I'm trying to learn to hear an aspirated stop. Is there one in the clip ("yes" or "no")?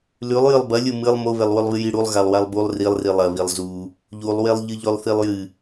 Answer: no